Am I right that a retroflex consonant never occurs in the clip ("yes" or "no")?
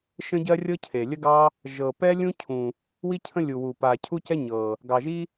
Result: yes